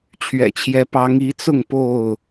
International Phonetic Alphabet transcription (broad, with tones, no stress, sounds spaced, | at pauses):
t͡ɕʰ ɥ ɛ̰˨˩ t͡ɕʰ j ɛ˨˦ p ɑ˨˦ ŋ i˨˦ t͡s ʊ˥˨ ŋ p o˥˨ ʊ̯